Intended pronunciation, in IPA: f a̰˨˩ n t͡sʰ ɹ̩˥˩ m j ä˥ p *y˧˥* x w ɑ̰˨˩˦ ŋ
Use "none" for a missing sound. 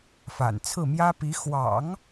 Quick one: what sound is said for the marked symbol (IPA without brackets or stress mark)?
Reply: i˧˥